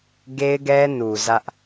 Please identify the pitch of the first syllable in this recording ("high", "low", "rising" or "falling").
high